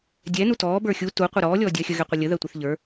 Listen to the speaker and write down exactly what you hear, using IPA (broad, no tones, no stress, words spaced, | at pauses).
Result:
dʲɛ nutɔː bə˞xʲu tu qʷɐɾɔː lʲɔːdʲɐːxʲə ɣɛqʷɐlʲə ðɜtʷɛθʎə˞